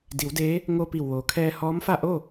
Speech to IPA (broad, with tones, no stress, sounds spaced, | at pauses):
d i˩˧ w d eː˧˥ | ŋ o˧ p i˧˩ w ʋ oː˩ kʰ ɛː˧ h ɔː˧˥ m f a˥˨ ʔ o˥˨